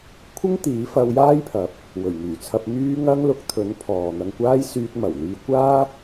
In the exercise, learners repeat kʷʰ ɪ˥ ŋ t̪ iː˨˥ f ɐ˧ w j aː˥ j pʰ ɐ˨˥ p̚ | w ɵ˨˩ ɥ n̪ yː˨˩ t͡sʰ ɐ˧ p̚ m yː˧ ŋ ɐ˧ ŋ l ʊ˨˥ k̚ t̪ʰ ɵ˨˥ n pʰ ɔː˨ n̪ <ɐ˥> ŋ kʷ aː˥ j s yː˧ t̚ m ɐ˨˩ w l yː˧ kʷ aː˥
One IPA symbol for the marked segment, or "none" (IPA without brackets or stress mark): ɐ˧